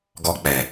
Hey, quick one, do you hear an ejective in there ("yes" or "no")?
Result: no